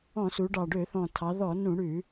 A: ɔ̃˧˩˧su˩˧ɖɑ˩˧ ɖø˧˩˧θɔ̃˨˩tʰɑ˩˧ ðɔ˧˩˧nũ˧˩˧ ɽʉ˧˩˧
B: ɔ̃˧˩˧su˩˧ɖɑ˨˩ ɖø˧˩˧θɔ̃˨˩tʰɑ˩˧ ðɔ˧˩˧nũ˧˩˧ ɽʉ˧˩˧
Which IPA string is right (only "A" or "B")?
B